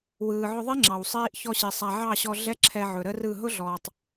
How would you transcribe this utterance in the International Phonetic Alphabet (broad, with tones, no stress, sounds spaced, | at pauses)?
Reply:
w ɯː˨ ʕ ʊ˧ ðˤ i˦ ŋ͡ǁ ɑ˨ w sˤ iː˧ ʔ ç ɔ˦ ɕ i˨ sˤ a˧ ʕ ɑ˦˨ ɕ ɔ˧ ɮ ɛ˦ ǁʰ ɛ˧ ʕ ɵ˨ ɾ ə˦ r ɯ˦˨ ɦ ʊ˦ ɮ ɔː˨ tˤ